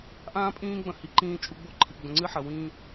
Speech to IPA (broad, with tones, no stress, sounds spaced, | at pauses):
ʔ ãː˦ pʼ ĩː˦ ɡ͡b ɐ̃˦ h i˨ ǃ ĩː˦ t͡ʃʼ u˦ ɡ͡b o˦ ǃʰ i˨ ɡ͡b ə̃˨ ŋ͡ǀ ɨ˦ ħ ɐ˨ w ĩː˦